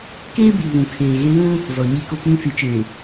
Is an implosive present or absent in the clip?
absent